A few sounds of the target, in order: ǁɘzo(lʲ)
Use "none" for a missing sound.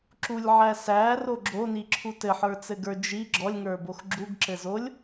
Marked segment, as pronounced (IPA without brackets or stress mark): lʲ